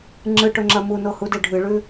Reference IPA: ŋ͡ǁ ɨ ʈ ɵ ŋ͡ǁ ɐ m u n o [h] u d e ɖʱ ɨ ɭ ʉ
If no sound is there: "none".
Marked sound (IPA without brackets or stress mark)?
h